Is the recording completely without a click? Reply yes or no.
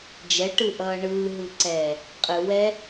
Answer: no